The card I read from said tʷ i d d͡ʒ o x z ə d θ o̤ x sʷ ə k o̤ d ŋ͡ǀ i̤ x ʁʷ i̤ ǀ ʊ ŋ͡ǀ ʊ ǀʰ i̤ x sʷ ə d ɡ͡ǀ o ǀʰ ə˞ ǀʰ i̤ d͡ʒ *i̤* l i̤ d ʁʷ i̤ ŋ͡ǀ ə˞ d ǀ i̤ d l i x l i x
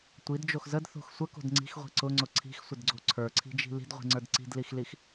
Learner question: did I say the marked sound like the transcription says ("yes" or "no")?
yes